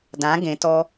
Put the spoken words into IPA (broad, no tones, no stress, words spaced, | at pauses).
dã ɡẽ tɔ